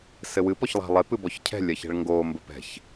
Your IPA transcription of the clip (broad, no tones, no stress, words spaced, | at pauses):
sɘwɨp ɔçlˠa̤lˠep ɨbɔçcʰɛ̤ lʲɐçɛ̤ɭŋɡo mbɘpɛ̤ç